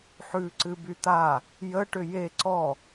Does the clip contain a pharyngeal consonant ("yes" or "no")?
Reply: yes